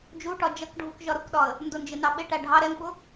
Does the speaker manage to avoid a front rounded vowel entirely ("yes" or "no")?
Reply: yes